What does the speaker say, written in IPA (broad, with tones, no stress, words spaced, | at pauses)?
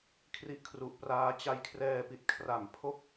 kʰri˦˥ʔkʰru˨˩ʔpraː˧ t͡ɕa˦˥jkʰrɛː˧pi˨˩t̚kʰra˨˩m pʰo˥˩k̚